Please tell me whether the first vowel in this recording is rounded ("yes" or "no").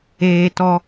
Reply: no